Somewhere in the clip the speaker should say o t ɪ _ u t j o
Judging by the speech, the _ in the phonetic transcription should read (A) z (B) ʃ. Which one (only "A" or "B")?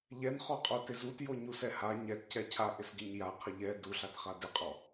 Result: A